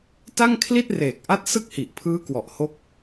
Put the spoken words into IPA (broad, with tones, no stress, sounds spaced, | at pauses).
t a˥˩ ŋ kʰ l i˥˩ t̚ r eː˨˩ k̚ ʔ a˦˥ t̚ s ɯ˥˩ k̚ h i˨˩ ʔ pʰ ɯː˦˥ k w ɔ˨˩ ʔ h o˥˩ k̚